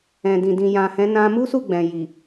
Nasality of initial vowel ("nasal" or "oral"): nasal